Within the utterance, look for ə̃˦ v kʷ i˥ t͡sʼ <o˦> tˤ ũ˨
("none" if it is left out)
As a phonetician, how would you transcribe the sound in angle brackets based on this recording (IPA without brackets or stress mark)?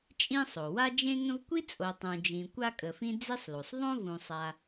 o˨